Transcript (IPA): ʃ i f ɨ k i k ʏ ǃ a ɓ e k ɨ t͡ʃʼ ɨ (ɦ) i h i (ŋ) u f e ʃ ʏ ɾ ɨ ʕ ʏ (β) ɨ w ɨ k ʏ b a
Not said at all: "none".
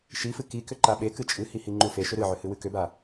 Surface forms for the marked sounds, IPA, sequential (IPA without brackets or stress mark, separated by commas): h, ŋ͡ǃ, h